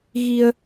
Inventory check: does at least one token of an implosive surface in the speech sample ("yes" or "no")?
no